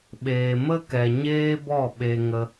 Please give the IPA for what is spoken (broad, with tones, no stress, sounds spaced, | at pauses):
ɓ eː˨ m ə˦ k ɛ˨ ɲ eː˦ b ɔ˦˨ ɓ e˧ ŋ ə˧